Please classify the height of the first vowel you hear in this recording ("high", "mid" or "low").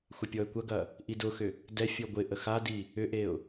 low